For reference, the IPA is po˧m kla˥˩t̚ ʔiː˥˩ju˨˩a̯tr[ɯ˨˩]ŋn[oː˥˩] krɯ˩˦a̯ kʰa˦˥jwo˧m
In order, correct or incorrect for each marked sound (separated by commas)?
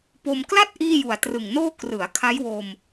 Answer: correct, correct